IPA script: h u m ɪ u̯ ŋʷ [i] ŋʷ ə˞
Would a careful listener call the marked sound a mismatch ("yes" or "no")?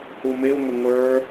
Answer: yes